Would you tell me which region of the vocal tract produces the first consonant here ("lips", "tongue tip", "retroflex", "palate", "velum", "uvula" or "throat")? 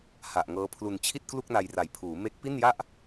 throat